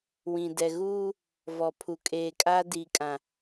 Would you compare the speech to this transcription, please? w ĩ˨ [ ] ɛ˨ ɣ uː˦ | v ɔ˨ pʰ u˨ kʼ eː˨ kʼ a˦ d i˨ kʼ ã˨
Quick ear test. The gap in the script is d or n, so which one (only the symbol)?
d